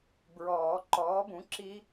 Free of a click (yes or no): no